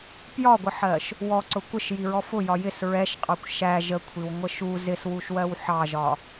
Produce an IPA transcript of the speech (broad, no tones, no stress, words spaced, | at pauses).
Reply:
pjɒɡʷəħɜʃ | wɔǀʊ kʷəʃjiɹɔ fʊjɒ jɪs ɹɛʃqʼɑkʷ ʃæ ʒəkʷʰiwŋʷə ʃu zɪswuʃwɜw ħɑʒɒ